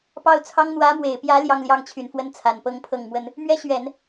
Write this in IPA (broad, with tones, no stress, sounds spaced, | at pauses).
p ɑ˥˩ ʊ̯ t͡sʰ ɑ˥ ŋ n̪ w ä˧˥ m w e˨˩ ɪ̯ p j ä˧˥ l j ɑ˥˧ ŋ l j ɑ˥˩ ŋ t͡ɕʰ y˨˩ n f w ə˥ n t͡sʰ a˨˩ n p ɤ˥ ŋ pʰ ɤ˥˩ ŋ m w ə˥ n | m ɥ ɛ˥ ɕ ɥ ɛ˨˩˦ n